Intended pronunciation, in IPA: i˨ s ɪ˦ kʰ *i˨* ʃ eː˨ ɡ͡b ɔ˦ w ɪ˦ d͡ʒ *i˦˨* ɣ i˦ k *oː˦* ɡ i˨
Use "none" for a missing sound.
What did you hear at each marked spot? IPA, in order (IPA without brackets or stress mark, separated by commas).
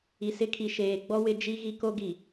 i˨, i˦, o˦